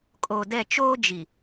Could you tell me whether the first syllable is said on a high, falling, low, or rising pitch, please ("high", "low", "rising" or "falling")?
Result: low